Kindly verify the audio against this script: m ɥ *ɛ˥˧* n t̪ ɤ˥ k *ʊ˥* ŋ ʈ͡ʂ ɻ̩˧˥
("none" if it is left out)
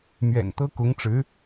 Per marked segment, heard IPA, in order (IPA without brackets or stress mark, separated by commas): ɛ̰˨˩, ʊ˧˥